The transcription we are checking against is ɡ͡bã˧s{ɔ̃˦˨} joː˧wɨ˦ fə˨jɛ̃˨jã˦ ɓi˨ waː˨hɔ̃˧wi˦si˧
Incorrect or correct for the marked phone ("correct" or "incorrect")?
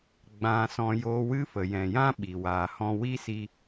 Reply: incorrect